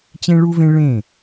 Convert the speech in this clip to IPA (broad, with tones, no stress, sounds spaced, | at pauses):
t͡ɕ ẽ˦ ɭ u˦ v ẽ˦ ɭ ẽ˦˨